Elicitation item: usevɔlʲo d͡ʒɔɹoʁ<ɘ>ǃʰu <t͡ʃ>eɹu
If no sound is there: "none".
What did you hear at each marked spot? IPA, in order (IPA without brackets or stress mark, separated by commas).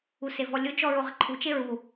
ɘ, t͡ʃ